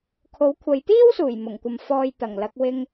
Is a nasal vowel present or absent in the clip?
absent